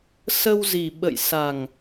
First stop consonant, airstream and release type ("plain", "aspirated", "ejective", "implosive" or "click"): implosive